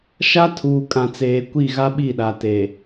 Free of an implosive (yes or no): no